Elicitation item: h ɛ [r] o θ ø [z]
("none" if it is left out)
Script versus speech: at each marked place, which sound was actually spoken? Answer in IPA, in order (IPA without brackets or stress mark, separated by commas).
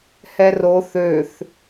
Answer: r, θ